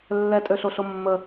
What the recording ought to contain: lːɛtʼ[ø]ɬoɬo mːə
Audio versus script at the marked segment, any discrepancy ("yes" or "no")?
no